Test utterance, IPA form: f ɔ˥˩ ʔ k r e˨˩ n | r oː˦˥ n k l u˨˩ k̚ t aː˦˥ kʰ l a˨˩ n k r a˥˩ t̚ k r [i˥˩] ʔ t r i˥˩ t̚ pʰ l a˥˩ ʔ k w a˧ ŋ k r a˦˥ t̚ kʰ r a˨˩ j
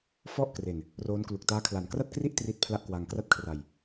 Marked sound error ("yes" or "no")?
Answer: no